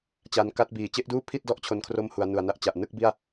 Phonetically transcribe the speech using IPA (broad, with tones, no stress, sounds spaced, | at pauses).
t͡ɕ a˧ n k a˦˥ t̚ b iː˩˦ t͡ɕ e˦˥ ʔ d uː˥˩ pʰ i˥˩ t̚ d ɔ˥˩ ʔ t͡ɕʰ o˧ n kʰ r o˦˥ m h u˩˦ a̯ n u˨˩ a̯ n a˦˥ ʔ t͡ɕ a˨˩ ʔ n ɯ˥˩ k̚ b i˥˩ a̯